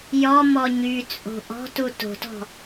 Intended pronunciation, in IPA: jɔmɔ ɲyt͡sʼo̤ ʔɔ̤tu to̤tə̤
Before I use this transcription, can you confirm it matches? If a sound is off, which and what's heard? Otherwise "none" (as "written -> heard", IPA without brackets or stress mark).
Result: ə̤ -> ɔ̤